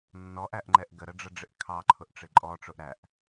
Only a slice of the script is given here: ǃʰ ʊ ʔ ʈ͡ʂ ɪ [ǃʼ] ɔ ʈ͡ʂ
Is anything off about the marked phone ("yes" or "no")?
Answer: no